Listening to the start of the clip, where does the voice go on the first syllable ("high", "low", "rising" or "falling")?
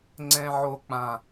low